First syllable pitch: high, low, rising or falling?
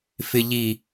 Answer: low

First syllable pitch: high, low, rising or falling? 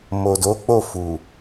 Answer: low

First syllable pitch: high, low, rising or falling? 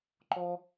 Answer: high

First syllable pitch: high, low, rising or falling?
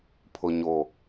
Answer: low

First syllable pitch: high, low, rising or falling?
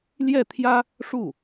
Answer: falling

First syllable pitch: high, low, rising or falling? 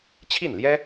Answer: falling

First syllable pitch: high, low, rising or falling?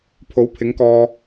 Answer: rising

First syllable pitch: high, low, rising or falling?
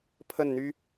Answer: falling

